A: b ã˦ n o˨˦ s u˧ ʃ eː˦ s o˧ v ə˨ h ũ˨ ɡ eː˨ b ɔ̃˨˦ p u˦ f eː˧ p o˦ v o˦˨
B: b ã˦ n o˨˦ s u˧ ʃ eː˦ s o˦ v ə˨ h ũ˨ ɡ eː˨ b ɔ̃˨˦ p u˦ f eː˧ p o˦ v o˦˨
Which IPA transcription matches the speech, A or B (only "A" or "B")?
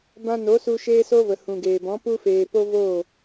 B